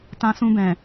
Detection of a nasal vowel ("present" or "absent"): present